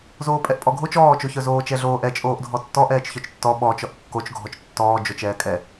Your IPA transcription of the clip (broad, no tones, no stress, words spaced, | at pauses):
zoːpʼɛʔpʼɔɡʱot͡ʃ ɔːt͡ʃoçœ zoːt͡ʃɛɮoːʔɛ t͡ʃʼoːʔdʱɔtːɔʔ ɛːt͡ʃçœt͡ʃtːɔ ɓɔt͡ʃɔʔ kːot͡ʃ ɡʱɔt͡ʃtːɔː d͡ʒot͡ʃɛːkʼɛ